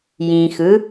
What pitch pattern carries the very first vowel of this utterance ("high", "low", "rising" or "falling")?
low